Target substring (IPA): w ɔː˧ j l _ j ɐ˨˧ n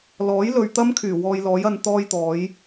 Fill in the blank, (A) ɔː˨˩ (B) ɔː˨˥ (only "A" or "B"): B